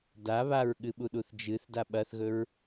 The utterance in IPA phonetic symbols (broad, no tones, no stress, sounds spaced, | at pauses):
d a β a ɹ ɠ ɨ ɓ u ɗ u θ d͡ʒ ɨ θ d a ɓ ɐ θ ɣ ɵ ɹ